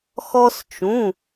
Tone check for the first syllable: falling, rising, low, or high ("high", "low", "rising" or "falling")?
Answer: high